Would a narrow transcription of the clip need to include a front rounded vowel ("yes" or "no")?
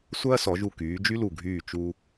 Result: yes